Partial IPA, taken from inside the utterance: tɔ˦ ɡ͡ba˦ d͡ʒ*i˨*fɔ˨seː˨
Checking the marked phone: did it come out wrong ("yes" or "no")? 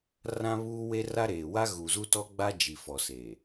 no